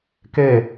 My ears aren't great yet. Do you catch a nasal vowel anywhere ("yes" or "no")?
no